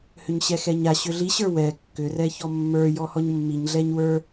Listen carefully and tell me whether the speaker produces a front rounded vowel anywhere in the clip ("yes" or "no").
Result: yes